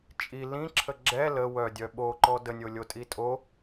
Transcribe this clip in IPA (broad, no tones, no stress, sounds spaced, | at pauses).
t͡ʃʼ i l ĩ ǁʰ ə ɡ͡ǁ ɛ l ə w œ dʲ œ ɓ o ǃ ɔ d ə nʲ o lʲ o tʼ i tʼ o